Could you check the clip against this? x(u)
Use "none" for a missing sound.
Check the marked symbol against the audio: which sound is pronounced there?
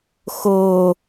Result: o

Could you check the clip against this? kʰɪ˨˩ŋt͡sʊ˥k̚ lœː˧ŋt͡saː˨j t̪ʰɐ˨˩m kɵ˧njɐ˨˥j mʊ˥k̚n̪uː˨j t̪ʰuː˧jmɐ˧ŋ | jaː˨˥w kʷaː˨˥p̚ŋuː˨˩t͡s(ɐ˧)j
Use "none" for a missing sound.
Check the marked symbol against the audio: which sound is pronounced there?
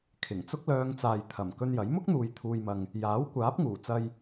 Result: ɐ˧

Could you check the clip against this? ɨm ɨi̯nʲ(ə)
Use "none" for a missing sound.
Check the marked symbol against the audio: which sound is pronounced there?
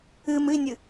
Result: ɨ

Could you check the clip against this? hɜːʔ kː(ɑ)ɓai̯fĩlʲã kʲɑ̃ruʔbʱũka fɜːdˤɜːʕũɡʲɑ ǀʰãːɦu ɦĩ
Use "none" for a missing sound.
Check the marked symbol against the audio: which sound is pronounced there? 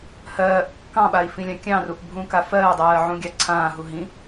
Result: ɑ̃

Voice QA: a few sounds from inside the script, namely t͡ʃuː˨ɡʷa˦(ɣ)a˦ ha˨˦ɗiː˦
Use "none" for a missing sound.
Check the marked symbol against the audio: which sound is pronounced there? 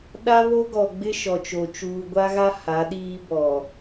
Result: ɣ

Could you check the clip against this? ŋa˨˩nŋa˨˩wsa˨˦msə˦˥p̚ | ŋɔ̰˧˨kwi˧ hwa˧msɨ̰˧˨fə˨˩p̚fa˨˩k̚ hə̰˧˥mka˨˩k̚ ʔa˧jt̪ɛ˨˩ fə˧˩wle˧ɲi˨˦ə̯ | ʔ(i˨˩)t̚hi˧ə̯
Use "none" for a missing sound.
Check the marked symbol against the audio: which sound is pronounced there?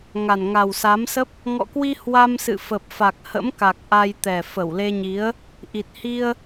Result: i˨˩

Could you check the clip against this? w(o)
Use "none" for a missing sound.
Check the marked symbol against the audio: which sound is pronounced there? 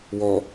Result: ɔ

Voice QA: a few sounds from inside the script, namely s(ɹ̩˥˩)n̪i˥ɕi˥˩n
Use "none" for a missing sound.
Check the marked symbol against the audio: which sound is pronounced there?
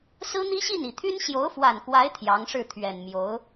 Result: ɹ̩˥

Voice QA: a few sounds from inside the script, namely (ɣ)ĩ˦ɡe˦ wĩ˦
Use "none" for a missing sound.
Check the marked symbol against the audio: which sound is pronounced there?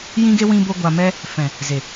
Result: j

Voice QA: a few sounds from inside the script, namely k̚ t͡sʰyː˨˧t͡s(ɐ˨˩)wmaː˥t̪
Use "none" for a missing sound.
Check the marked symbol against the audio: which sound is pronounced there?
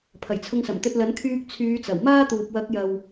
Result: ɐ˨˩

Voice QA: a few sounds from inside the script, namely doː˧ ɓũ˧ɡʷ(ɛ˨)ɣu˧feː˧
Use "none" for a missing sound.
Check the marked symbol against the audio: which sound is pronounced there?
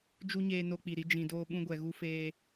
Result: ɛ˨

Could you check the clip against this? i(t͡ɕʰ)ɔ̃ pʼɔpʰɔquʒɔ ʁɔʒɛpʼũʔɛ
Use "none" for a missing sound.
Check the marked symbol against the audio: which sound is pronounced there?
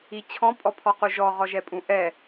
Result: t͡ɕʰ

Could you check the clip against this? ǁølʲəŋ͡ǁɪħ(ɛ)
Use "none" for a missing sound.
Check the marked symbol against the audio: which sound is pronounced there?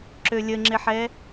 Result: ɛ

